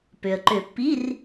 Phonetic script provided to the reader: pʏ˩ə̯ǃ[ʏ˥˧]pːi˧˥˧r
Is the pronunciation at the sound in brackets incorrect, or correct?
incorrect: ʏ˨˩˦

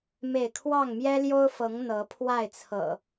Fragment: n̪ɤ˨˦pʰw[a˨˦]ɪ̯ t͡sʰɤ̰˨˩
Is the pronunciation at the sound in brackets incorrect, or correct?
incorrect: a˥˨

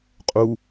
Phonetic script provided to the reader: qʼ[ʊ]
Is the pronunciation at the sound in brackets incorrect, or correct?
incorrect: u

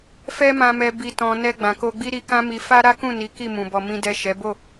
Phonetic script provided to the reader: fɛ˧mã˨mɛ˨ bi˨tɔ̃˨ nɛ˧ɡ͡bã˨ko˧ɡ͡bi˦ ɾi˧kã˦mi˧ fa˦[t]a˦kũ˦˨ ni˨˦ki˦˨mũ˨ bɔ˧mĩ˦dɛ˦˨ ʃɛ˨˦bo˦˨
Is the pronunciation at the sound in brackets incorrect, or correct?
incorrect: ɾ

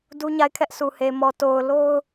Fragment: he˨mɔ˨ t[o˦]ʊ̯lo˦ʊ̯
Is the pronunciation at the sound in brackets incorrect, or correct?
incorrect: o˨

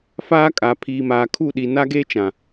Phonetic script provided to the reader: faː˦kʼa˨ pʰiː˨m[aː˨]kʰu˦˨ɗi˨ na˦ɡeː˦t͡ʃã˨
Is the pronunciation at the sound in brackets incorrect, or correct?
correct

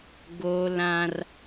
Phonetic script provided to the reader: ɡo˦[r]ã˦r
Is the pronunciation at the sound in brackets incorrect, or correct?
incorrect: l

